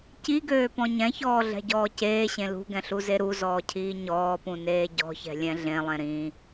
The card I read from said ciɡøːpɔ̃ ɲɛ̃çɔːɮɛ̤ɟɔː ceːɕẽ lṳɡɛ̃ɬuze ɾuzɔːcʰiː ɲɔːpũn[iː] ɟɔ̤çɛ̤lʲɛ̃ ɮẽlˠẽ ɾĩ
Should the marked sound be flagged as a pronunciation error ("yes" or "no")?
yes